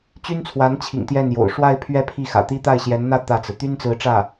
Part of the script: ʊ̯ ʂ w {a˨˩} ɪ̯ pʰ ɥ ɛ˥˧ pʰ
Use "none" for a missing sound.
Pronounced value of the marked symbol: a˥˧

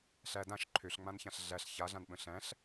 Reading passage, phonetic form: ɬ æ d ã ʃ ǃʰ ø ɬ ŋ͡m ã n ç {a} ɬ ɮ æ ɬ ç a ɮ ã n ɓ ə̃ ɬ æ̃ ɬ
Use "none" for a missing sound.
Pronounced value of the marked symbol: ã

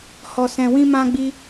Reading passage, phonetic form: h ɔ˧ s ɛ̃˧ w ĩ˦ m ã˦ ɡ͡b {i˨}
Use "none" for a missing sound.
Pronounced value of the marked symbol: i˦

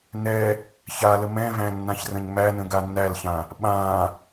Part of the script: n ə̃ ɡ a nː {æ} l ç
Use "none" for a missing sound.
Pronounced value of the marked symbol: æ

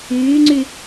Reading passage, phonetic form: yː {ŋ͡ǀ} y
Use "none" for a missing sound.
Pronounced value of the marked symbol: ŋ͡ǀ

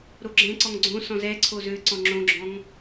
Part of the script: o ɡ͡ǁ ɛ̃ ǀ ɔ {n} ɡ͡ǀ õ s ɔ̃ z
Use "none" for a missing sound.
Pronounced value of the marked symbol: ŋ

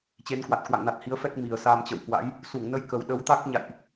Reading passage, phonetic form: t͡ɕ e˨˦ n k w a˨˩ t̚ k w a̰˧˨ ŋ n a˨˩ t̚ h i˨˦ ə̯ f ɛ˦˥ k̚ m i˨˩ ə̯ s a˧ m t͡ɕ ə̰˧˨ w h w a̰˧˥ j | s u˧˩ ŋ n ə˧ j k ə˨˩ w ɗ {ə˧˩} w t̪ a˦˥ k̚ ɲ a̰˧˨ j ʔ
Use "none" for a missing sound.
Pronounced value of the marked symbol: ə˨˦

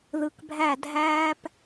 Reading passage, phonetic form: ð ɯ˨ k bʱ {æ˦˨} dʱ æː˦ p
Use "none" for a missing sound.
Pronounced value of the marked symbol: æ˦˨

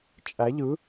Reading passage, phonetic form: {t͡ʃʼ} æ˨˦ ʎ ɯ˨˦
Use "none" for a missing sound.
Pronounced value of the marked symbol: t͡ʃʼ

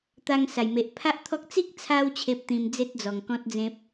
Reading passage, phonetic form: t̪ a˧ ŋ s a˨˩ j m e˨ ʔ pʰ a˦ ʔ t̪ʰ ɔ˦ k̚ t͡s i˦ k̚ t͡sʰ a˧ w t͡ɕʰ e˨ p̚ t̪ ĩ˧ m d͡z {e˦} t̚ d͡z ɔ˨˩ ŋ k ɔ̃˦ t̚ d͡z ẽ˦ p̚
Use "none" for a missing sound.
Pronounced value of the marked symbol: e˦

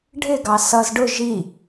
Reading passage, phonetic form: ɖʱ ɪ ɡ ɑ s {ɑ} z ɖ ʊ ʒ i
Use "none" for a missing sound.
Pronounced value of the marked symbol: ʌ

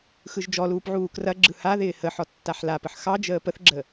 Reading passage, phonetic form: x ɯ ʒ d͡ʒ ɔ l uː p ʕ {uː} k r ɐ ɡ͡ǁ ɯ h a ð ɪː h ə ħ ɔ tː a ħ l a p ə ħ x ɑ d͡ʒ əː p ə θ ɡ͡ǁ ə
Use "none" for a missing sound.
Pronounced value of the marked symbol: uː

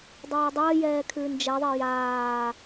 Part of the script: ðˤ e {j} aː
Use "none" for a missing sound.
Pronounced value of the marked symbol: j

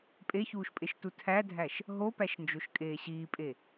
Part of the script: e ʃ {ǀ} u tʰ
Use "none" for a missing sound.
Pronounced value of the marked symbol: t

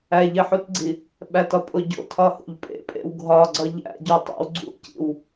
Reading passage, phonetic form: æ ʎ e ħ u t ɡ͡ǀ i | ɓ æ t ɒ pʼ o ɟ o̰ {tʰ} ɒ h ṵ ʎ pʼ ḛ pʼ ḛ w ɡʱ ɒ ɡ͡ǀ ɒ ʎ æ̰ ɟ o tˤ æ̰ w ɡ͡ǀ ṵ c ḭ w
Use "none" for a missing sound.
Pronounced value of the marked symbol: tʰ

